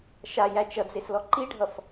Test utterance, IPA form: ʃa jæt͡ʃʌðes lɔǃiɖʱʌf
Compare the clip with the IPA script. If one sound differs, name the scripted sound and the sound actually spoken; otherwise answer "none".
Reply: ð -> d͡z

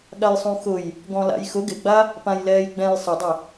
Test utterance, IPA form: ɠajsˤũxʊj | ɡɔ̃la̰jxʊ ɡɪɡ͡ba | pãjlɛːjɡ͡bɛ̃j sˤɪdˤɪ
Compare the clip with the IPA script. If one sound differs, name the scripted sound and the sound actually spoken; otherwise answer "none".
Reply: none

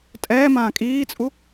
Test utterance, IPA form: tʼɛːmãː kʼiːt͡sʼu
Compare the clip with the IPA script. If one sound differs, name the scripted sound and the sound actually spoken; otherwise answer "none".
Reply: none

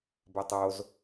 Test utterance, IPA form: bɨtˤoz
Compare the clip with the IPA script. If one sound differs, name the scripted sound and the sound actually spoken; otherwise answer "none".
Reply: ɨ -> e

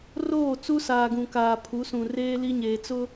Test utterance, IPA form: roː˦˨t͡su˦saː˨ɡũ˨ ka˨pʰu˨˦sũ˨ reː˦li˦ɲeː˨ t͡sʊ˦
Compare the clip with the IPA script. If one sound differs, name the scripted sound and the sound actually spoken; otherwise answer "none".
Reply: a˨ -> aː˨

